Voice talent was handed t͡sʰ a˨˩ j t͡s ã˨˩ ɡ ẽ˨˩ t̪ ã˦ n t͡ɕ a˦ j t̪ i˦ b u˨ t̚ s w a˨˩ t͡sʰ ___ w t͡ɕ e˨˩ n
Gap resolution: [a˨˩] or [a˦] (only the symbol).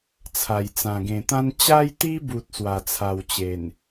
a˨˩